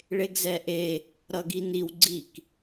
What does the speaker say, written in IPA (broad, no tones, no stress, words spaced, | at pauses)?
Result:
ɭeɡzɛʔe | ɾʌɡiniw ɡ͡ǀik